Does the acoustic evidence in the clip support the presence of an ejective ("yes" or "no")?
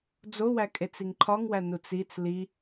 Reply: yes